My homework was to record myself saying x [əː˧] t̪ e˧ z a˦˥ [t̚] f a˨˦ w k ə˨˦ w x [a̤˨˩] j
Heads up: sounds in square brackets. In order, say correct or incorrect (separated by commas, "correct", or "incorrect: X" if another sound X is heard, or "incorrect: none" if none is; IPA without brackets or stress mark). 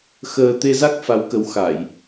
correct, incorrect: k̚, incorrect: a˧˩˨